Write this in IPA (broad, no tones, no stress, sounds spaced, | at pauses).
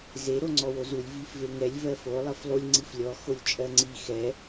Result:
z e ɾ o ŋ͡ǀ ɔ w o z u lʲ v i f v e ŋ ɛ lʲ v ɜ f o lˠ ɜ f lˠ u lʲ ŋ͡ǀ i f lʲ ɔ x o lʲ t͡ʃʼ ɜ ŋ͡ǀ i x ɛ